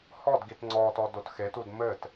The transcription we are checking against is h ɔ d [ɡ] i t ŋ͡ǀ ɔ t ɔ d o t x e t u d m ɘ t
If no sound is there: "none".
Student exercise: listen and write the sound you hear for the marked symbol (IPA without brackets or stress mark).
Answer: ɡ